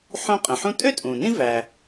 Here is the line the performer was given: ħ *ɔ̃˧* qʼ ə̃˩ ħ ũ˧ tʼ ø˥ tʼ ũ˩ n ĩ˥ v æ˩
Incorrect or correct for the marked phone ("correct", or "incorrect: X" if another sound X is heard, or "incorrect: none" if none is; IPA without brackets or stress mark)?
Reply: incorrect: õ˧